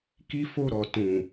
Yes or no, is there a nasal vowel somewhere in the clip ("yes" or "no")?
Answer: yes